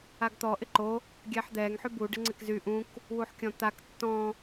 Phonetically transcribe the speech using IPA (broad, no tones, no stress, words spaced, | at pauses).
aɡt̪ɔ ʔɪǃo | ɡʲɛħd̪ɛŋ ħybu ɖɪŋ͡ǀɪkzy ʔũk | wuħkʲɔ̃t̪ak tːɔ̃